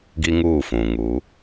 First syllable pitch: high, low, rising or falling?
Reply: high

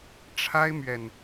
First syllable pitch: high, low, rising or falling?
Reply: high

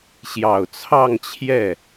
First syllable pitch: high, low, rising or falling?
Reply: low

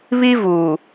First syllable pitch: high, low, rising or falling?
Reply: high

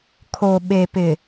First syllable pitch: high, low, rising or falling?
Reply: low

